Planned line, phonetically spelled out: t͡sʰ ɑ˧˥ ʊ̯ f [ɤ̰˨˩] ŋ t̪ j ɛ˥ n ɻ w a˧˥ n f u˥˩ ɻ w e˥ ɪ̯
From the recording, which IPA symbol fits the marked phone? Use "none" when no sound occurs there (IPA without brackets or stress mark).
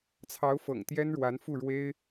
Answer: ɤ̰˨˩